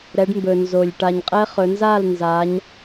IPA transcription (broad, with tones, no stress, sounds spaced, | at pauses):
ɾ ɛ˩˧ ɖ m b ɵ˩ n z o˩ lʲ ʈ a˩ ɲ qʼ ɛ˧˥ χ ɵ˩˧ n z a˥˩ l n z a˩˧ ɲ